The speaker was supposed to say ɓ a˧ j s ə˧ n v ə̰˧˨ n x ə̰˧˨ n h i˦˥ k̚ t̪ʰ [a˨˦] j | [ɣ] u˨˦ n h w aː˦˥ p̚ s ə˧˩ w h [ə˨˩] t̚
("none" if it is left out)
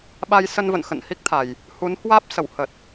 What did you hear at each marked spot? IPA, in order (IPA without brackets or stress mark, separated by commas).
a˨˩, h, ə˨˩